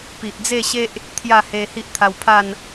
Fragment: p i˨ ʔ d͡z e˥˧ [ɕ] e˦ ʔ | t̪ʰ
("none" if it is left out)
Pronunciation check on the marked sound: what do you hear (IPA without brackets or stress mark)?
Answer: ɕ